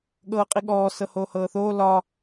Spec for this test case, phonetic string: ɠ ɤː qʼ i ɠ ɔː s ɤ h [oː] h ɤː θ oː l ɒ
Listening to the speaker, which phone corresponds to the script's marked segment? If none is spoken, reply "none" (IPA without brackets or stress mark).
oː